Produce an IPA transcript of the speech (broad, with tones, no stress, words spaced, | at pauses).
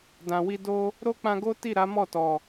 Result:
dã˨ wi˧do˦ | ɾo˦k͡pã˧ɡo˦ ti˦˨ɾa˨˦mɔ˦˨tɔ˨